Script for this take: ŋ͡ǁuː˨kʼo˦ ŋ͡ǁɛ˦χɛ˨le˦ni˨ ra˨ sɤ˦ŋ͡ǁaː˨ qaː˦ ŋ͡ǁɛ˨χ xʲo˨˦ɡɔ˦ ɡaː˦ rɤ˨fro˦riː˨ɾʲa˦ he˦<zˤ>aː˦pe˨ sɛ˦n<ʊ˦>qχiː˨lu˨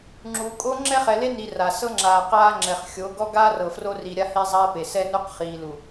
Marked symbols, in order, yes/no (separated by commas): yes, no